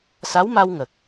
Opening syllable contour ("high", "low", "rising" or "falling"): rising